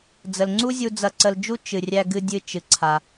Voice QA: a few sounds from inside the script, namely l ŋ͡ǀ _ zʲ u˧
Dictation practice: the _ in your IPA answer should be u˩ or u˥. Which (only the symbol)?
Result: u˥